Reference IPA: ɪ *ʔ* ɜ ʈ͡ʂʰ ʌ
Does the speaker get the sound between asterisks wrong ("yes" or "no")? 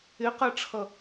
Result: yes